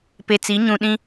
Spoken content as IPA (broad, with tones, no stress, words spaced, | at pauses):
pe˨t͡si˨˦ ɲũ˨ ɗĩ˦